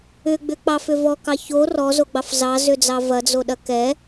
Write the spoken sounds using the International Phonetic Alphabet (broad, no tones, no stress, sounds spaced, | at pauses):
ʏ ɡ͡b ʏ k͡p ɑ f ʏ v ɔ k ɑ ç o r ɔ z o ɡ͡b ɑ f z ɑ z ʏ d͡z ɑ v ɐ d͡z o ɗ ɐ k ɛ